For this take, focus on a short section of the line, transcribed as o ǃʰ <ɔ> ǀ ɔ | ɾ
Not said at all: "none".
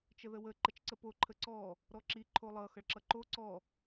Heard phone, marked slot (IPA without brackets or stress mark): ə